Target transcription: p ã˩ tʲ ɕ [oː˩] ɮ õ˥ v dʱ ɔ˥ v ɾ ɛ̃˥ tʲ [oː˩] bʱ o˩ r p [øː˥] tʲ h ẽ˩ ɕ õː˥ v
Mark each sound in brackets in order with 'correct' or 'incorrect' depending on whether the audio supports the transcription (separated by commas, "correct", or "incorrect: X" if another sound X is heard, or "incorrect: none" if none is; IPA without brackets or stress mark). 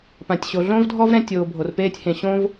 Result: incorrect: o˩, correct, incorrect: eː˥